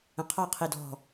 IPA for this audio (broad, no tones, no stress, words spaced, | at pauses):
ə̃qʰɑ qʰidɔ̤